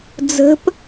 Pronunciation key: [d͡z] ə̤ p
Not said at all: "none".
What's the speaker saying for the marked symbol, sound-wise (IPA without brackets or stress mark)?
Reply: d͡z